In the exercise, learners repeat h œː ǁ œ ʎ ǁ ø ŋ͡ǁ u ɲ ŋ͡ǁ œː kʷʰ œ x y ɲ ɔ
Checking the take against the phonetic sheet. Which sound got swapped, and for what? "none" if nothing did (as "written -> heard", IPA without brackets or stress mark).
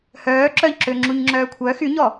none